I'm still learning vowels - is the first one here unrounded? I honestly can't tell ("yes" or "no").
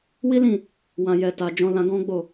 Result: yes